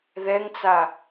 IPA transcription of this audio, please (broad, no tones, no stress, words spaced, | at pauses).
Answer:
ðɛŋt͡sa